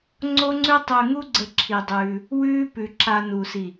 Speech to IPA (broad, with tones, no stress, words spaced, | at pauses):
ŋ͡ǀo˦ŋ͡ǀʉ˦ tˤʉ˧ŋu˦ɡ͡ǀə˧ ǁʰi˧dˤʉː˧ | wʉː˦pʉ˨ǁa˧ nu˨si˨